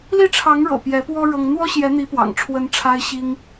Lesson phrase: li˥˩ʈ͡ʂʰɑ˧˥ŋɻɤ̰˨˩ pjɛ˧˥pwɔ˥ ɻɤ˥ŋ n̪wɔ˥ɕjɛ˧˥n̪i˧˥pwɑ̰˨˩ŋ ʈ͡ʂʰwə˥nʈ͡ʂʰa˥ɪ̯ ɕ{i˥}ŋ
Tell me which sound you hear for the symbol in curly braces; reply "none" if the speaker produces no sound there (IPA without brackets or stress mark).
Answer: i˥